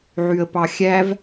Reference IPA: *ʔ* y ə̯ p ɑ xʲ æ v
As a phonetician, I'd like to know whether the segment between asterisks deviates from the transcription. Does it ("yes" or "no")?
yes